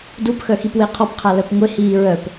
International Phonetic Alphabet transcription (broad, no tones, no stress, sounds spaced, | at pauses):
d u p x œ x i p w e qʰ ɔ p qʰ a l œ p ŋʷ e h iː ɹ œ p